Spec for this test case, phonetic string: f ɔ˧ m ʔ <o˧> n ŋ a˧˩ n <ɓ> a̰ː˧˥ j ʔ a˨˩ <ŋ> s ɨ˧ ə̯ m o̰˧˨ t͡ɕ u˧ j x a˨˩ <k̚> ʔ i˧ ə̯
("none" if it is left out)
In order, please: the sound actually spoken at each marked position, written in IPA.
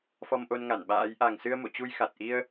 o˧, ɓ, ŋ, t̚

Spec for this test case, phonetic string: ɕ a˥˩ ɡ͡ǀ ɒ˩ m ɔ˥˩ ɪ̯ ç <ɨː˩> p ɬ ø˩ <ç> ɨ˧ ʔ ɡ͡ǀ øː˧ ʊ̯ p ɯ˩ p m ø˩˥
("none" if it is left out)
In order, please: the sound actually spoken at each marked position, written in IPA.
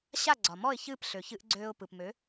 ɨː˥˩, ç

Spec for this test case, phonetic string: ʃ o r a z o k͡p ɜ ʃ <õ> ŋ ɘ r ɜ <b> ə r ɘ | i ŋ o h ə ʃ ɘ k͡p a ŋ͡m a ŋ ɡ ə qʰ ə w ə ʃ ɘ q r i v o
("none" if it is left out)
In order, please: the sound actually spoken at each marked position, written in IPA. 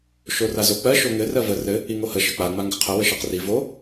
o, v

